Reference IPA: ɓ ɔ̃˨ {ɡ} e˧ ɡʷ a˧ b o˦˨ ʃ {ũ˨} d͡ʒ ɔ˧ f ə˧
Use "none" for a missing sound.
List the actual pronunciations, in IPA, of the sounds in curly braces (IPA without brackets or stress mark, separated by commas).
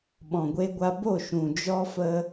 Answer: ɡʷ, ũ˨